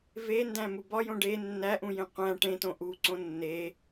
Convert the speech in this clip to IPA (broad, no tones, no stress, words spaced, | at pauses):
vendæ̃mu bɒjõ ɖe nːæʔũjẽ qʷæ̃ ʈẽtõ ʔuǀõ nːe